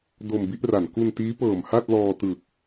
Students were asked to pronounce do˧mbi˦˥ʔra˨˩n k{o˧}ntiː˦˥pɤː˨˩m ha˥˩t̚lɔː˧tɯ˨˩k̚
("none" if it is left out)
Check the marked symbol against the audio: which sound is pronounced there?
u˧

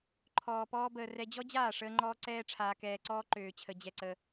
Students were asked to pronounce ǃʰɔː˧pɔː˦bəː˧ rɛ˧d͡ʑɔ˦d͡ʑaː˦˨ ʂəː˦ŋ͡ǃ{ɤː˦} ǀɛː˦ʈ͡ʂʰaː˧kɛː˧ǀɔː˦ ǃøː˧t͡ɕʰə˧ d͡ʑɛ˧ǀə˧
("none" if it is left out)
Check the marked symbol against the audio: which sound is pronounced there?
ɔː˦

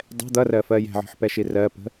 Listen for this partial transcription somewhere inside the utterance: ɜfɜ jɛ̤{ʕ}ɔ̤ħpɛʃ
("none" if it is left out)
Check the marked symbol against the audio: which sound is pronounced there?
ʕ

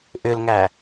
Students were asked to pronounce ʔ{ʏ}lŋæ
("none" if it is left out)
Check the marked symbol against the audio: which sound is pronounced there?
ʏ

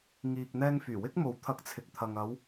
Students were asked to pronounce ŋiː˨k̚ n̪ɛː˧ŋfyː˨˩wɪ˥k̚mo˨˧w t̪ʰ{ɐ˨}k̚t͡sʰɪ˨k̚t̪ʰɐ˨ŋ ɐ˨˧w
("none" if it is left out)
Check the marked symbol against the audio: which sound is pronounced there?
ɐ˧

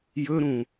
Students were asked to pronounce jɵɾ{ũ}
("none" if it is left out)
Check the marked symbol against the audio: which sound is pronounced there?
ũ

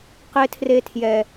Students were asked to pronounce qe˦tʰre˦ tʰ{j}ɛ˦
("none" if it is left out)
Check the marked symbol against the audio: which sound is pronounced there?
j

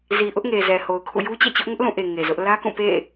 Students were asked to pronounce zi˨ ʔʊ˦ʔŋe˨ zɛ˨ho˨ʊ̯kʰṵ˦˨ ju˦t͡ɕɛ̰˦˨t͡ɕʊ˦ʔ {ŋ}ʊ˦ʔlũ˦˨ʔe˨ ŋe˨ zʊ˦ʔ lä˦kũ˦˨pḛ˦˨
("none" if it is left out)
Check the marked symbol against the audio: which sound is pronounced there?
ŋ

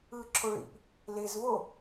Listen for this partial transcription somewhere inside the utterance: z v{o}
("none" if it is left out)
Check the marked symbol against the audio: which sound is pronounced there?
o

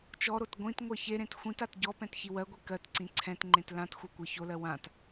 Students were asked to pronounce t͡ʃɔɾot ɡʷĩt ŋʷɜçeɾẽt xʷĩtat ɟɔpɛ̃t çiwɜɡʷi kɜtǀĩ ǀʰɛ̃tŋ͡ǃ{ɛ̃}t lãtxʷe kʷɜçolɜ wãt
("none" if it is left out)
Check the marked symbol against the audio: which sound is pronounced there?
ẽ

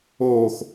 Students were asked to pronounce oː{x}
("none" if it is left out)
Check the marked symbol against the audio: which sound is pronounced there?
x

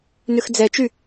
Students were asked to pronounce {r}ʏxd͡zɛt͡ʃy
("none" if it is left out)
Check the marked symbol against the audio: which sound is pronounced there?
n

